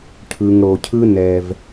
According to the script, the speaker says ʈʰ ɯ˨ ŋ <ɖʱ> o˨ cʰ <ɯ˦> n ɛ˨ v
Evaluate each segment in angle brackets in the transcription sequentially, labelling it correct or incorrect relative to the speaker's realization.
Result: incorrect, correct

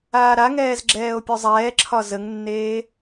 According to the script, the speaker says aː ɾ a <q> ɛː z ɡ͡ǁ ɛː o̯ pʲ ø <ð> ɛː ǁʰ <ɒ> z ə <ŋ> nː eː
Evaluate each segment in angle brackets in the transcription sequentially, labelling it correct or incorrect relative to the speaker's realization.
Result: incorrect, incorrect, correct, correct

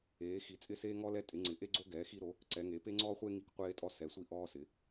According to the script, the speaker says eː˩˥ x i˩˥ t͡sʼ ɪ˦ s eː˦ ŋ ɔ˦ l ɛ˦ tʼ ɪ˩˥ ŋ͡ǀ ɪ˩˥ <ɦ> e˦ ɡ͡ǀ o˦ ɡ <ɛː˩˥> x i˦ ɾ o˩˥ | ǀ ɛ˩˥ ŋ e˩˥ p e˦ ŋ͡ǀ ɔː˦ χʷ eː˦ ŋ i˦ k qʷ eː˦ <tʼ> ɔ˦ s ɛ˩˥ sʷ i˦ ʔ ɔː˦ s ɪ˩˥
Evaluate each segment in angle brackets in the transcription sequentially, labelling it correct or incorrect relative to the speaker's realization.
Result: incorrect, correct, correct

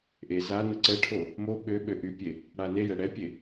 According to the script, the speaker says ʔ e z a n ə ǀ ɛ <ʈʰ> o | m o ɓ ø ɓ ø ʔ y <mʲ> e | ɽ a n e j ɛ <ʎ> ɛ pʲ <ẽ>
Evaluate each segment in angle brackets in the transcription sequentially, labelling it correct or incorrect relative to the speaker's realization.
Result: correct, incorrect, incorrect, incorrect

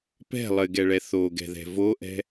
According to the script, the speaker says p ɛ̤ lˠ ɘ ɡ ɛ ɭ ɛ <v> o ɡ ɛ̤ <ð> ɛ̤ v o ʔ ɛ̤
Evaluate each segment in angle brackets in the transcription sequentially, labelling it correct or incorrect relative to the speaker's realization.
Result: incorrect, correct

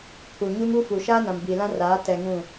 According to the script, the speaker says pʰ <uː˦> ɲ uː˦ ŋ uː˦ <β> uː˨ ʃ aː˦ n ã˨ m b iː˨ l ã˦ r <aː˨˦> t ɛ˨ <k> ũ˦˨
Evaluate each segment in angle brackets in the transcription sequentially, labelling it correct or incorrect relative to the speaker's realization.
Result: incorrect, incorrect, correct, incorrect

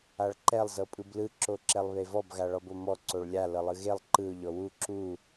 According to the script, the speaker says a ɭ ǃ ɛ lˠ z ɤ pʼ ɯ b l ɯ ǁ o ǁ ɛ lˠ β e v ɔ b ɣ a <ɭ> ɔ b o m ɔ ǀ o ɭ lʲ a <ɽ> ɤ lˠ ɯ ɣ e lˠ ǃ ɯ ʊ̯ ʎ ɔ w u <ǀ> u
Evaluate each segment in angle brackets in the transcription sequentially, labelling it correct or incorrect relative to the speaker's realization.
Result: correct, incorrect, incorrect

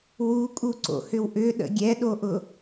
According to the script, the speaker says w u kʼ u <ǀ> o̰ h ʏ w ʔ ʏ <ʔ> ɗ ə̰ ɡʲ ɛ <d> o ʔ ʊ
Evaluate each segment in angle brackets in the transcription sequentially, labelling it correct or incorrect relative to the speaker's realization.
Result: correct, incorrect, incorrect

